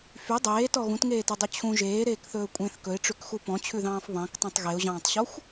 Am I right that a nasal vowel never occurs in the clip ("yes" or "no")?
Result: no